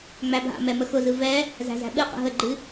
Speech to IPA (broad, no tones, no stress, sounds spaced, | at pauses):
ŋ͡m æ bʱ a̰ m ɛ m ə x ʊ z ɯ v ɛ | z æ̤ z æ̤ ɓ ɨ q ə̰ ɦ ə ɡ͡ǃ ɨ